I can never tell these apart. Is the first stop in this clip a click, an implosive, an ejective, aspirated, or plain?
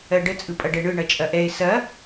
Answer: plain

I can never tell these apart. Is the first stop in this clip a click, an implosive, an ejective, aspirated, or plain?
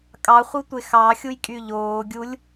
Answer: ejective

